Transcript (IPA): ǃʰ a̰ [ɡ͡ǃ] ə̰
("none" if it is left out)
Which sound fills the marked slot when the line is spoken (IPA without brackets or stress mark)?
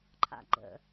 ɡ͡ǃ